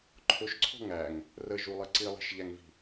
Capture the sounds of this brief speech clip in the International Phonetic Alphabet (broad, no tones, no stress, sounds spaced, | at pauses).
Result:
ǃʰ ʊ ʃ ǀʰ ɔ̤ ŋ æ ŋ | r ə ʒ u lˠ ə ǀ i lˠ i̤ ʃ ʎ æ ŋ v i̤